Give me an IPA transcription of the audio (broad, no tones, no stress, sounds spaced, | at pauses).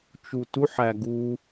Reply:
t͡ʃ u t u ħ æ ɡ u